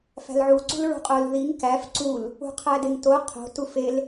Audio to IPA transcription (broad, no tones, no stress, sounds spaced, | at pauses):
f æ̤ l ʕ u ǀ ṳ l ɹ ṳ qʼ o l ð i ŋ k æ f ǀ u l | ṳ qʰ æ d e ŋ t o qʰ o̤ t u f e l